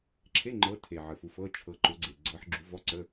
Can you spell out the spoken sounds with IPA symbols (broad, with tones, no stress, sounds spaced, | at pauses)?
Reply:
ǁʰ e˧˥˧ ŋ͡ǃ ɤ˨˦ tʰ e˨˩ ʕ ə˨˩ f u˨˦ f ɤ˧˥˧ t͡ʃʰ ɤ˨˦ ǃ ʊ˨˦ ɡ͡ǀ e˨˩ ɡ͡ǀ ɤ˨˦ ħ ɡ͡ǁ u˨˦ v ɔ˧˥˧ ǀ ə˧˥˧